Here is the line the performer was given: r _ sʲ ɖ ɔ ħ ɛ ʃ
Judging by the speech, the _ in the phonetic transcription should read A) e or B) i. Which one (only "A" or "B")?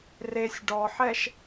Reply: A